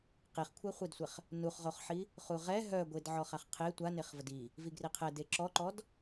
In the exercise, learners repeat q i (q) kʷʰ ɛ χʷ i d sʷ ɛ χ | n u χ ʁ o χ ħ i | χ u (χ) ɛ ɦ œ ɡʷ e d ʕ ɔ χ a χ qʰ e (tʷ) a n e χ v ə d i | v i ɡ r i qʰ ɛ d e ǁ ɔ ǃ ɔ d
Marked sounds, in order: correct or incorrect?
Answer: incorrect: χ, incorrect: ʁ, correct

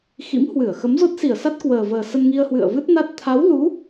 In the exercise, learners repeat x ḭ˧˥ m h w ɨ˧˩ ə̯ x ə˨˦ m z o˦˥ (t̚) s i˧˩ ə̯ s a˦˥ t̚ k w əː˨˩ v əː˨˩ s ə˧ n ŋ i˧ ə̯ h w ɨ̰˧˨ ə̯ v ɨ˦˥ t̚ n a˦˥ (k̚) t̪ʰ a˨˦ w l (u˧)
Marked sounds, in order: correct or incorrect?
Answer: correct, incorrect: t̚, incorrect: u˨˦

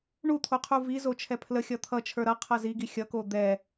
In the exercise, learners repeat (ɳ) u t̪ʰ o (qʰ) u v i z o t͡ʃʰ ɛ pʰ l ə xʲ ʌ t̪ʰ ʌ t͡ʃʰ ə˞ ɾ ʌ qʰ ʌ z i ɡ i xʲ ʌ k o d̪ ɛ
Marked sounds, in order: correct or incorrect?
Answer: correct, correct

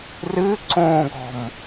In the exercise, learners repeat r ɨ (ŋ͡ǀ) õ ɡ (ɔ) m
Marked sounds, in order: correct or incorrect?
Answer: incorrect: ǀ, incorrect: ɔ̤

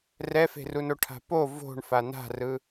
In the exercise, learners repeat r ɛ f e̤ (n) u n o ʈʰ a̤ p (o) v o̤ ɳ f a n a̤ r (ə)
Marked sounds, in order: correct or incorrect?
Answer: incorrect: r, correct, incorrect: ɯ

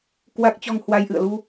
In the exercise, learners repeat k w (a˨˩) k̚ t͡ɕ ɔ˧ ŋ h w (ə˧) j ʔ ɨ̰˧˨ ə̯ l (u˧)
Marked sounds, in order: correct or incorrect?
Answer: incorrect: a˦˥, incorrect: a˧, correct

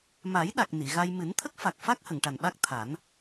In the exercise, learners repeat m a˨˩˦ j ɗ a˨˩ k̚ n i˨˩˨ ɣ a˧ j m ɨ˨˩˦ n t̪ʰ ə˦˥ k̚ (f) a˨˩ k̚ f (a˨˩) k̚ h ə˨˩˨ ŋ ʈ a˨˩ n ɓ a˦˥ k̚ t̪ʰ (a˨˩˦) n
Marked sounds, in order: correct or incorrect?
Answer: correct, incorrect: a˦˥, correct

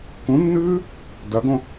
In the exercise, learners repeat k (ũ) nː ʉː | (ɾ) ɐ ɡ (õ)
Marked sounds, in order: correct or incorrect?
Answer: correct, incorrect: d, correct

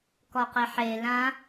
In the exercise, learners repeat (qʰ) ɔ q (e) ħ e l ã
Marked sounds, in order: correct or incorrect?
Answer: incorrect: k, correct

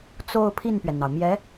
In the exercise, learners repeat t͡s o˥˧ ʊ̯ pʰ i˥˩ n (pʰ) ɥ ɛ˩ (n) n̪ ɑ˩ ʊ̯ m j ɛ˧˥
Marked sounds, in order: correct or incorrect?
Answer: incorrect: p, correct

